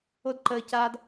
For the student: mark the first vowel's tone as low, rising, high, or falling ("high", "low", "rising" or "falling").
high